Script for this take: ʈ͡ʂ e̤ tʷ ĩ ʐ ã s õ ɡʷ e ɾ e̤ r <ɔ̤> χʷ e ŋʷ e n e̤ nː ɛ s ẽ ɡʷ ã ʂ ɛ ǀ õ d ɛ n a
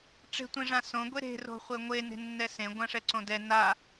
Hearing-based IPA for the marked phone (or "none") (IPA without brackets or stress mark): o̤